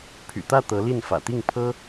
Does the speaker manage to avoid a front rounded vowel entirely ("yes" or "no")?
no